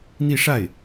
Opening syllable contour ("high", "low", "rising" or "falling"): falling